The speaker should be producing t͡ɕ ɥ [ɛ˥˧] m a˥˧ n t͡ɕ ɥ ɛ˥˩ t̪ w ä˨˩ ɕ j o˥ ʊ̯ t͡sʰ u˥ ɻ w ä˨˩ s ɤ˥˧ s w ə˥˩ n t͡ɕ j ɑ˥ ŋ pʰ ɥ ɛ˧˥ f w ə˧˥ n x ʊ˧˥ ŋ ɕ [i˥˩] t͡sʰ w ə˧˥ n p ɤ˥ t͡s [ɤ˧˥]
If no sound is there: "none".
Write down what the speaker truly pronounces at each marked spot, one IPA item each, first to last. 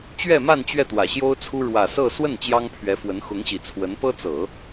ɛ˥˧, i˨˩, ɤ˨˩˦

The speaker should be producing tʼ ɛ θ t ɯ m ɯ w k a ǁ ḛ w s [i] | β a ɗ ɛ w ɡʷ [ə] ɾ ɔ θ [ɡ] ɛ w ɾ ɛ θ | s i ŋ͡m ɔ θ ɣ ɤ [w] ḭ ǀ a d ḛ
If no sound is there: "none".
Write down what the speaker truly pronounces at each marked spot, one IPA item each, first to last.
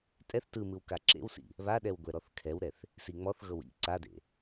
ḭ, ɛ, kʰ, w

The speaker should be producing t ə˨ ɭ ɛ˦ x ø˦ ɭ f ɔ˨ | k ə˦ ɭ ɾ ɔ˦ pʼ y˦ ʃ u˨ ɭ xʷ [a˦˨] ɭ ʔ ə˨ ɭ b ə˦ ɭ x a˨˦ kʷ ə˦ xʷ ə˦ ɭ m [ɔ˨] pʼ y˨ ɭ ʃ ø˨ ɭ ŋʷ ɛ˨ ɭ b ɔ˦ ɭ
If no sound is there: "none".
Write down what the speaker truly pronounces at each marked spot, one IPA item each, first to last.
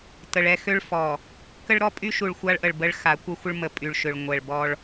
a˦, ə˨

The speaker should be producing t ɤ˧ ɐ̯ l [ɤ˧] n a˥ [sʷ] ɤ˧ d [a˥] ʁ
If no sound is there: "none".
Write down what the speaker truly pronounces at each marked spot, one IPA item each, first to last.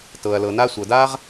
ɤ˧, sʷ, a˥

